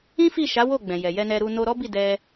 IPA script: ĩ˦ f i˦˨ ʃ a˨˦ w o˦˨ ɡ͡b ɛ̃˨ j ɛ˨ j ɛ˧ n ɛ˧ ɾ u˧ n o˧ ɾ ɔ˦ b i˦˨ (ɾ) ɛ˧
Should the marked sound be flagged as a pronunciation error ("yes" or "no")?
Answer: yes